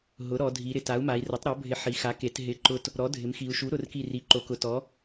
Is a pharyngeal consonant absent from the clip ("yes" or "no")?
no